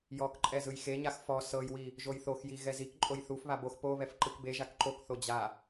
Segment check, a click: present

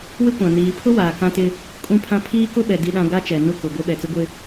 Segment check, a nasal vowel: present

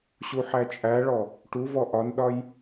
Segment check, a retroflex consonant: present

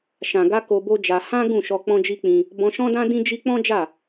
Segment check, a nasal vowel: present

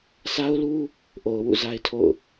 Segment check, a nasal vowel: absent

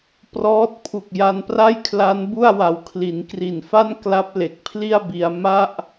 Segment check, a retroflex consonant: absent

